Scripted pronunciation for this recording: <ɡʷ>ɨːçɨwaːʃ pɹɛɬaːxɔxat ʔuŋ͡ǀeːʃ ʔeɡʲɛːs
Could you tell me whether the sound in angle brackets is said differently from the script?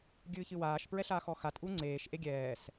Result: yes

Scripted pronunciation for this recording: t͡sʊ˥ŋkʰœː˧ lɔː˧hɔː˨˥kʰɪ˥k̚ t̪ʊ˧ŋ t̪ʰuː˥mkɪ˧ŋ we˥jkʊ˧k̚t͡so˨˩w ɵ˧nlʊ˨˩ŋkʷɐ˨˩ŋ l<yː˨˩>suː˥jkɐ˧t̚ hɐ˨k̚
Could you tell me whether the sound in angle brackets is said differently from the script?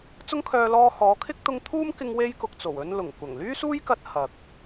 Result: yes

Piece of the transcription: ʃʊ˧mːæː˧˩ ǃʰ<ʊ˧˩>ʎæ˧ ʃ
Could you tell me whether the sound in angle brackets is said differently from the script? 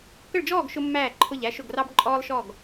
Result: no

